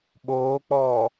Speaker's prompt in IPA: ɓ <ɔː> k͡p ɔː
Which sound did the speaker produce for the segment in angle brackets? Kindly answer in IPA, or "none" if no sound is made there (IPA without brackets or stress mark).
oː